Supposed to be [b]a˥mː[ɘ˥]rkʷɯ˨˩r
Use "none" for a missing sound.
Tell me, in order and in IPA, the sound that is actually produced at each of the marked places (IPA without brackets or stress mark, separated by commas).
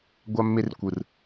ɡʷ, e˥